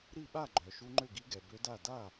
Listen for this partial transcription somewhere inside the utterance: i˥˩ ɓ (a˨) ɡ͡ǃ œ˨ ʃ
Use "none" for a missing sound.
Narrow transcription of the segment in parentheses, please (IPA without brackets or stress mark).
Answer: a˥˩